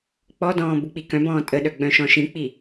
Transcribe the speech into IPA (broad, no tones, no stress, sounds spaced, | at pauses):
k͡p ɔ d ɔ̃ː b u k͡p i k œ̃ b ɔ̃ː tʼ ə ɗ œ ɡ͡b œ̃ ʃ ɔ̃ ʃ ĩ k͡p i